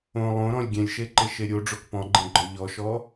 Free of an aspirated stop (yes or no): yes